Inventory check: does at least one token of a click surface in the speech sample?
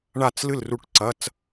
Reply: yes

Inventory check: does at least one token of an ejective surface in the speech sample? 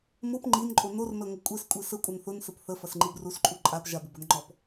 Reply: yes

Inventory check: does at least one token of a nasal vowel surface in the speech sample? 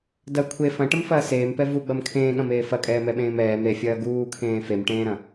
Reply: yes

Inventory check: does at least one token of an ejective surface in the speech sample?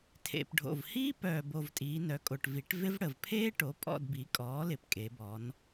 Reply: yes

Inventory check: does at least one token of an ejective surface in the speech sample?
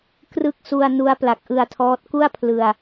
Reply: no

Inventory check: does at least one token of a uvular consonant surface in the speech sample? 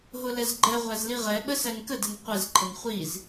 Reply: yes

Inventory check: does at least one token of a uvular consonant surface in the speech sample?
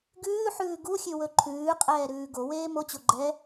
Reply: yes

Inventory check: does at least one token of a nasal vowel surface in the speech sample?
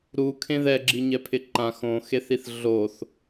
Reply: yes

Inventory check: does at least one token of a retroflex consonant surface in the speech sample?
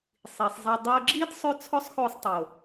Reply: no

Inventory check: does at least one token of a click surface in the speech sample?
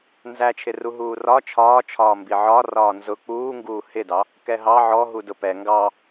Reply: no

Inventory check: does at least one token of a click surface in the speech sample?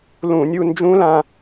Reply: no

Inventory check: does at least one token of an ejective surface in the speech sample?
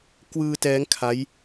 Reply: no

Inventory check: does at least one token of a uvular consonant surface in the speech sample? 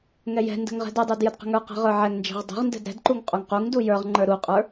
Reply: yes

